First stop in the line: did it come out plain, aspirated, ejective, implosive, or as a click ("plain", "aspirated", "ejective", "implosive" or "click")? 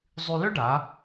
plain